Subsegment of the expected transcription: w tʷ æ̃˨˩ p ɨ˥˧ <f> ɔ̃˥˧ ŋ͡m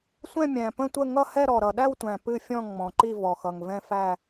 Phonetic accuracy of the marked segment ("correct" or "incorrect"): incorrect